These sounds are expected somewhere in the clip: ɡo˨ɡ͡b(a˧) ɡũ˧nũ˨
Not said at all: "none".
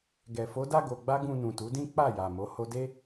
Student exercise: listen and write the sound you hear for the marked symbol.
a˧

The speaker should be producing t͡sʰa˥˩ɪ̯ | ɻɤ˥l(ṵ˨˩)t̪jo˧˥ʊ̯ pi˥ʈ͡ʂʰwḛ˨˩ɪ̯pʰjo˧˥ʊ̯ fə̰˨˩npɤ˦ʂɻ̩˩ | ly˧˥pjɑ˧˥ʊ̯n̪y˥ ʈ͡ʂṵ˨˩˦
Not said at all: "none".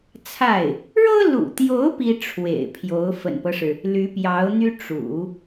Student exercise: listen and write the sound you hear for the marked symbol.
ṵ˨˩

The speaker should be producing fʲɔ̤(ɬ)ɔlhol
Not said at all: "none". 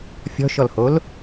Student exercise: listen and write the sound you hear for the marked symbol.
ʃ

